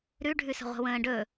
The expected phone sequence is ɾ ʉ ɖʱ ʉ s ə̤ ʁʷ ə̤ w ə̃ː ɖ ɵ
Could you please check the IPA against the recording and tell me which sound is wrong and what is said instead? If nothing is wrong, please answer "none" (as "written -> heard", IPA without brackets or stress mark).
none